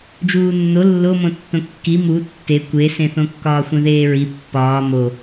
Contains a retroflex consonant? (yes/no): no